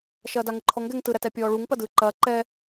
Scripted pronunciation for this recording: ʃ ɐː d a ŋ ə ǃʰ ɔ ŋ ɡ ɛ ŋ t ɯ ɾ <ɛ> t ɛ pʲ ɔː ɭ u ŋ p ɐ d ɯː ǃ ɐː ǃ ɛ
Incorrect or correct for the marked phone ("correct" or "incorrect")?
incorrect